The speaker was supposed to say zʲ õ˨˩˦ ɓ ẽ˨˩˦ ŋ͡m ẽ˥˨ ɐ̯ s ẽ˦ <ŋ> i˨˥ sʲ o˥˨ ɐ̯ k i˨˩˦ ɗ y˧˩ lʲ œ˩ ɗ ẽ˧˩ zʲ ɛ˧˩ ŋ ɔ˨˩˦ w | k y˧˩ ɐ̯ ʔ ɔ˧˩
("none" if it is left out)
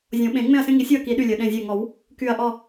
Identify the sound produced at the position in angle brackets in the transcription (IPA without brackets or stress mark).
ŋ